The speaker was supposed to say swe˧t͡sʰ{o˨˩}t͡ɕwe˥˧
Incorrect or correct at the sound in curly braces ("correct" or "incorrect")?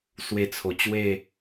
correct